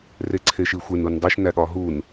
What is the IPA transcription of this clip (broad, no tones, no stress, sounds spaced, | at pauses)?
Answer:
r e ǀʰ e ʃ i xʷ e n u n dˤ i ʃ n æ ɠ ɒ ɦ u n